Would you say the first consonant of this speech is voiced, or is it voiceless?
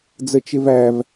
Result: voiced